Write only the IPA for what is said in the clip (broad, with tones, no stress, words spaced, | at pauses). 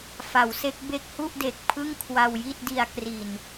fa˩˦wse˦˥k̚ be˦˥k̚hu˥˩ʔde˨˩k̚ pʰɯ˥˩ŋkʰwa˧wji˥˩t̚di˧a̯ kri˨˩n